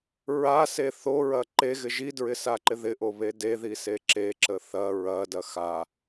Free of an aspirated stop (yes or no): yes